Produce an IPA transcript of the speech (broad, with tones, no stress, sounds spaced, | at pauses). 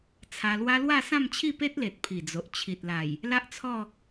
t͡sʰ a˧ l w a˦ l w a˥˧ s ã˥˧ m t͡ɕʰ i˥˧ p e˦ t̚ l e˨ t̚ pʰ i˨˩ d͡z o˨ ʔ t͡ɕʰ i˨ t̚ l a˨˩ j | l a˦ ʔ t͡sʰ ɔ˥˧